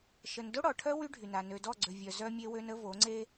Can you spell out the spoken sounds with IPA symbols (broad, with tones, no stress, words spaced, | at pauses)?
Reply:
ʃə˨ndo˦ɽɔ˨ʈʰœ˦ wy˦ ɖʱy˨na˨ nø˨dɔ˦˨ɡ͡ǀø˨vʲœ˨ zœ˦mʲe˦wø˦nə˦ vo˨˦ŋ͡ǀe˦